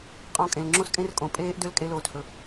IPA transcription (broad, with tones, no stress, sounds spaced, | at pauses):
qʼ ɔ̃˧ kʼ ẽ˨ l ŋ͡ǁ õ˦ s kʼ ẽ˦ r kʼ õ˨ pʼ eː˦ ʔ d ø˦ l kʼ e˧ l oː˨ t h ɵ˨